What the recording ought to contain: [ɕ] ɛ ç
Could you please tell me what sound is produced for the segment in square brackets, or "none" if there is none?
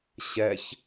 ɕ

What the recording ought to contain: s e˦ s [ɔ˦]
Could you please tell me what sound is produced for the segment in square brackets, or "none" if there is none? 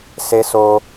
o˦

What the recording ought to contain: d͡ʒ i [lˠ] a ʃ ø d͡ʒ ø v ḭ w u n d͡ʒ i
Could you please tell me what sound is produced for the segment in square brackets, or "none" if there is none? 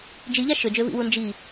ʎ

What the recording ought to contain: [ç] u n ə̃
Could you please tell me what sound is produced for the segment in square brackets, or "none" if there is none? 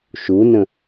ʃ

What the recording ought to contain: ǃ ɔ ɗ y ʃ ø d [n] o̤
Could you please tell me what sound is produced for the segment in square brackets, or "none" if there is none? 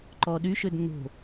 n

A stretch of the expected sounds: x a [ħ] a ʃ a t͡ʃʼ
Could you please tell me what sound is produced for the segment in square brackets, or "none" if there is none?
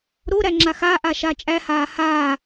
ʔ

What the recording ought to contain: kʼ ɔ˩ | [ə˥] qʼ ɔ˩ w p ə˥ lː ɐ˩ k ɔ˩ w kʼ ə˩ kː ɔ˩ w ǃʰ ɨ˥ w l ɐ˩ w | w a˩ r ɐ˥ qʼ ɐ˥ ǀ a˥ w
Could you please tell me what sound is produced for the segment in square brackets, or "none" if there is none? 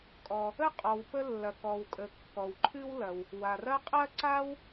ə˥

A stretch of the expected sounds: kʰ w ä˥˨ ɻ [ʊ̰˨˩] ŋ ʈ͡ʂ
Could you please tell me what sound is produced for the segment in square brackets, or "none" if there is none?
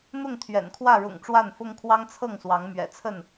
ʊ̰˨˩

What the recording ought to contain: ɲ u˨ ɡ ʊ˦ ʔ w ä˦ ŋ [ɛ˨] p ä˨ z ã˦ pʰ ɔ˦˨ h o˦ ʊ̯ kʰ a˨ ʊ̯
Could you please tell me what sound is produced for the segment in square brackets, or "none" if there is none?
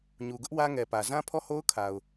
ɛ˨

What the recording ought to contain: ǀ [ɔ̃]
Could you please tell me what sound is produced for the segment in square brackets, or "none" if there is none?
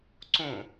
õ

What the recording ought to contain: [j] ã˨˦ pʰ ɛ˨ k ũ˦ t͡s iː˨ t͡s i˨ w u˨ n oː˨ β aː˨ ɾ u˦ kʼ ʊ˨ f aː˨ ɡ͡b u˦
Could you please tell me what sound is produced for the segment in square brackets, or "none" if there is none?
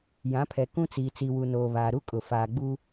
j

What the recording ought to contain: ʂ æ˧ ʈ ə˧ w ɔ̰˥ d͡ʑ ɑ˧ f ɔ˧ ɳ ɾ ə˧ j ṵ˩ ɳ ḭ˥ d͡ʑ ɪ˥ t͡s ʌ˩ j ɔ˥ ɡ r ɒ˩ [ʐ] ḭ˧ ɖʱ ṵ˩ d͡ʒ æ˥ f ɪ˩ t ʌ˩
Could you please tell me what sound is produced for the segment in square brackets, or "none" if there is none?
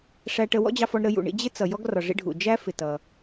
ʐ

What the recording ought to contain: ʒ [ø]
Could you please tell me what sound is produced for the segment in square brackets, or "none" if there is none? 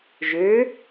ø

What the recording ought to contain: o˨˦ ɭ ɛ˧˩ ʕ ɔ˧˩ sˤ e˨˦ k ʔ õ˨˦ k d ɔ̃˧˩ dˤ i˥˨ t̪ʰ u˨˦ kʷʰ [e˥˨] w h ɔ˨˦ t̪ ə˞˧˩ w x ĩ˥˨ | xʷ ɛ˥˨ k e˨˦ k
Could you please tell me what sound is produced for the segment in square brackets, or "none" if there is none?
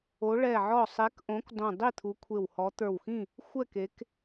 e˧˩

